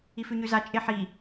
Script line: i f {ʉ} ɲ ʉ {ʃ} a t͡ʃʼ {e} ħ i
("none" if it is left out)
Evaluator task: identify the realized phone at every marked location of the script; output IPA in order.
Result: ʉ, z, e

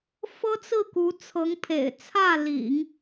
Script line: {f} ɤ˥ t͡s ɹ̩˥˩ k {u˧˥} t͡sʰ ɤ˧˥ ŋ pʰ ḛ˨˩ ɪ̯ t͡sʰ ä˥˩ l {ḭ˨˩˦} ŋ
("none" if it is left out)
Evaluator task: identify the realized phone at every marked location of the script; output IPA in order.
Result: f, u˧˥, ḭ˨˩˦

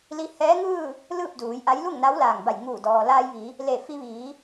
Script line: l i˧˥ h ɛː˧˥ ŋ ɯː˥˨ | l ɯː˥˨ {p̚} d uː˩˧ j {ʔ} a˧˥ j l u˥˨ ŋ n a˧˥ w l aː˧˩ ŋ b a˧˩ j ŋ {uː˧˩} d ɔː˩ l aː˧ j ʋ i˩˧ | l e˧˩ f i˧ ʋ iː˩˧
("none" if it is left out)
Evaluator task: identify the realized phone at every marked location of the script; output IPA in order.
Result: p̚, ʔ, uː˧˩

